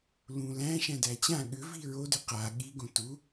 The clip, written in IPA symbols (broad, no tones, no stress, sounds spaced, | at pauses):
l ũ l æ̃ ʃ æ̃ d æ t͡ɕ ã ɠ ʏ v i ɹ o d ʏ q a ɠ i ɡ õ t u